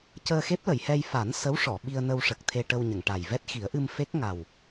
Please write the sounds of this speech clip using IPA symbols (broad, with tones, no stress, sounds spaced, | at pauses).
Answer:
c əː˧ x e˦˥ p̚ l ə˨˩˨ j h ɛ˧ j f a˨˩˦ n s ə˧˥ w ʂ ɔ˨˩˨ ɓ i˧ ə̯ n ə˧ w ʂ ə˨˩ k̚ t̪ʰ e˧ ʈ ə˧ w ɲ ə˨˩˨ ŋ ʈ a˨˩ j v ɛ˦˥ t̚ x i˨˩˦ ə̯ ʔ ɨ˧ m f e˦˥ k̚ ŋ a˨˩ w